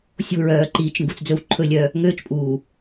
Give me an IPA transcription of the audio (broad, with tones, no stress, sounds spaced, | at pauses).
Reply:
sʲ o̤˦˨ ɹ œː˨ ǃ iː˨ t͡ʃ ŋ ɡ u˨ t͡s d͡z ɵ˦ w ǃʰ ɵ˦ lʲ œ˦ | ŋ øː˦ t͡ʃ pʼ uː˨